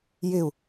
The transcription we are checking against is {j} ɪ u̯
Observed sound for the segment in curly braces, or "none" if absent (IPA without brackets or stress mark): j